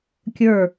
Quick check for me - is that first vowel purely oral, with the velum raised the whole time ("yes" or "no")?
yes